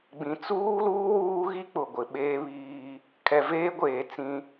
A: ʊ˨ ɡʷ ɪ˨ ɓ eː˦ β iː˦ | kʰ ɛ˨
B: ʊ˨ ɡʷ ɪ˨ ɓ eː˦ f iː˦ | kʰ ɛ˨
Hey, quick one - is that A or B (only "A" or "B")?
A